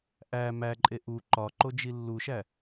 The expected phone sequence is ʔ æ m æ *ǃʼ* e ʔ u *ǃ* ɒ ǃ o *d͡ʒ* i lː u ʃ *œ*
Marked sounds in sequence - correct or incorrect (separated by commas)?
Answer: correct, correct, correct, incorrect